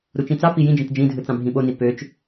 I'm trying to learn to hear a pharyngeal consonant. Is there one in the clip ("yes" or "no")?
no